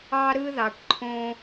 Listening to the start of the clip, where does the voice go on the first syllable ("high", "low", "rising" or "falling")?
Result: high